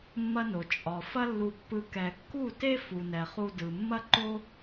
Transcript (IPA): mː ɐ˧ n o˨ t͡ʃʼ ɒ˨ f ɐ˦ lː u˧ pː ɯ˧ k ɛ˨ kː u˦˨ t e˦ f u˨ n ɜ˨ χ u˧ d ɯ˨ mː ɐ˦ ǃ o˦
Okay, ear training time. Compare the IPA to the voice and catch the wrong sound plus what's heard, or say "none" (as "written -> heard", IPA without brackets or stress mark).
ɜ˨ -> ɛ˨